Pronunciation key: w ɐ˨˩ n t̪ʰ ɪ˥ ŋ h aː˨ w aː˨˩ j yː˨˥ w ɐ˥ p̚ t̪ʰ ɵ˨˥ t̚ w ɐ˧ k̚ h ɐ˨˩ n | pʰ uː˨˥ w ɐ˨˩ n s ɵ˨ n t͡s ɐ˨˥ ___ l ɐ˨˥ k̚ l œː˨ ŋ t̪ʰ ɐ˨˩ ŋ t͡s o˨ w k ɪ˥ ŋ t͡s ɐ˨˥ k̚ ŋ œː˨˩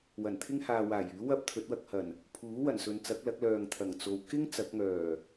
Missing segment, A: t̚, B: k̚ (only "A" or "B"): B